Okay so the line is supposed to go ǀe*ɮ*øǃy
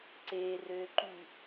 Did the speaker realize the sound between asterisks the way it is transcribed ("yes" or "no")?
no